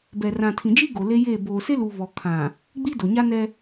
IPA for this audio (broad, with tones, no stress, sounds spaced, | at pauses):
b ɛ˨ r ã˨ tʰ ĩ˨ d͡ʒ i˦ ɡ o˨ l e˦ j eː˦˨ b oː˨ s e˦ l u˨ β ɔ˨ kʰ ã˨ | ɡ͡b i˦ d o˨ ɲ a˦ n ɛ˦